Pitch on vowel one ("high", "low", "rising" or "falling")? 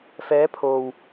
rising